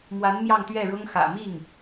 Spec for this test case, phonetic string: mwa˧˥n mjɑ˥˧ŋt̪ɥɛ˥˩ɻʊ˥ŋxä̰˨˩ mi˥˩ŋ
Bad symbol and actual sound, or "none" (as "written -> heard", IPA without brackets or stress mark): none